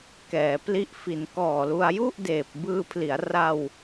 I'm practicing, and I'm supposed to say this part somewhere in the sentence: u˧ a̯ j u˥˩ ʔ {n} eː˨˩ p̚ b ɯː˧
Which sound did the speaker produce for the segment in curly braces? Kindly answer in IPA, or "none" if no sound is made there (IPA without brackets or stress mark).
d